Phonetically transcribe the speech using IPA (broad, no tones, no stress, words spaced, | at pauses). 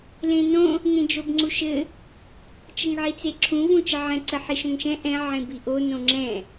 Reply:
lẽnõ | ŋẽd͡ʒobŋ͡ǀuʃɘ | t͡ʃəŋʕit͡seǁʰũ vũt͡ʃəʕɛ̃ ǀəħiʃõŋʃɛ̃ ʔɛ̃ ʕẽbiʔo nõŋ͡ǁɛ̃